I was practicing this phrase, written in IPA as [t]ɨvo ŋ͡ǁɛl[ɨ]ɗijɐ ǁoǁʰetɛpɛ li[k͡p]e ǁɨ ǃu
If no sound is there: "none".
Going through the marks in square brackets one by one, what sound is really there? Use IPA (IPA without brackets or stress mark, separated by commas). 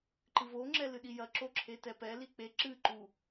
ǃ, ɨ, k͡p